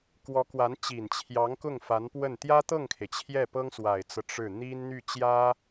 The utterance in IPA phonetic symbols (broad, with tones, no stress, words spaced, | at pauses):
kwɔ˧˥kwa˧˥n t͡ɕi˨˩nt͡ɕʰjɑ˧˥ŋkʊ˥˩ŋ fa˧˥npwə˥˩n t̪jä˥t̪ɤ˥˩ŋkʰe˩ɪ̯ t͡ɕʰjɛ˥˩pɤ˥ŋswa˨˩ɪ̯t͡sɤ˦ ʈ͡ʂɻ̩˥˩ n̪i˥nn̪y˥˩ t͡ɕjä˥